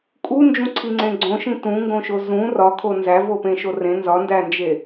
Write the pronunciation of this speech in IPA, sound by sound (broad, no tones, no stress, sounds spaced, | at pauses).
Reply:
kʼ u n d͡ʒ ũ ǀʰ i ŋ͡ǀ ẽ ɡ͡ǀ õ ʃ ĩ t ũ ŋ ɡ õ ʃ o z ũ r ɒ kʰ o n z æ v o p ẽ ʃ o r ẽ n z ɒ n d æ n d͡ʒ e